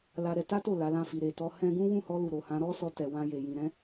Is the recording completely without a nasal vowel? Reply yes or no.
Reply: no